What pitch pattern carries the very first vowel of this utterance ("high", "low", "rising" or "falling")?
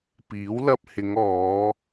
rising